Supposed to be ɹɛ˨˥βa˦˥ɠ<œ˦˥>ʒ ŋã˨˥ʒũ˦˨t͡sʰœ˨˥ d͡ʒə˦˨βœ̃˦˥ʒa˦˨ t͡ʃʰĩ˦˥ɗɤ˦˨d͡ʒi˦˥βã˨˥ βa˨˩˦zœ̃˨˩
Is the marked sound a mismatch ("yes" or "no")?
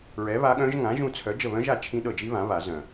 yes